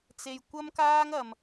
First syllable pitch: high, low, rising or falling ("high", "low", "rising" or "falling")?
low